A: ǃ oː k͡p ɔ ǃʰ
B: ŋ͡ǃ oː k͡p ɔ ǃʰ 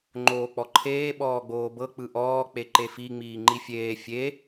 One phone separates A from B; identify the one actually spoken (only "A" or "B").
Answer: B